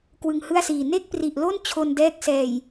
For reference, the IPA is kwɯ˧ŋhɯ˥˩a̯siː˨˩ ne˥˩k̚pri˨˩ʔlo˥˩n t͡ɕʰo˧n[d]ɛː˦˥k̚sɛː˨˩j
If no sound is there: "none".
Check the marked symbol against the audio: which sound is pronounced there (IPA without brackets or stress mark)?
d